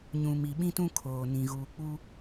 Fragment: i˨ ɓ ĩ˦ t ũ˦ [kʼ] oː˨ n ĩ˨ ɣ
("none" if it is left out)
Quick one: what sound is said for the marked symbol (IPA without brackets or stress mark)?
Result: kʰ